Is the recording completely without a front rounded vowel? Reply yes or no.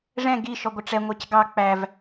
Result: yes